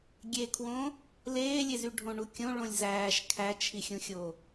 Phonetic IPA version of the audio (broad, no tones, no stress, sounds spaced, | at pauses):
ɡʲ e kʰ w õ | l eː lʲ e z y ɖʱ õ ɳ u kʲ õ ɭ õ lʲ z æː ʃ kʰ æ t͡ʃʰ i xʲ ũ xʲ o